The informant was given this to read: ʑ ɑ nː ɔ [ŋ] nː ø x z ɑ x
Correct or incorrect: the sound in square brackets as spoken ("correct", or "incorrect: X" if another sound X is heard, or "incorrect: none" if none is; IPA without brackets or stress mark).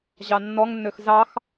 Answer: correct